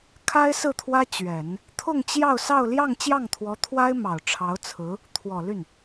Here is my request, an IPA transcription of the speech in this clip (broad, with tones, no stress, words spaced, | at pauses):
kʰa˥ɪ̯sɹ̩˥˩t̪ʰwä˥ t͡ɕɥɛ˨˩˦n | t̪ʰʊ˥˧ŋt͡ɕjɑ˥˧ʊ̯sɑ˥˧ʊ̯ ljɑ˥˧ŋ t͡ɕjɑ˥˩ŋt̪ʰwɔ˧˥t̪ʰwa˥ɪ̯ mɑ˨˩ʊ̯ʈ͡ʂʰɑ˧˥ʊ̯t͡sʰɹ̩˧˥ | t̪ʰwɔ˨˩ly˥˩n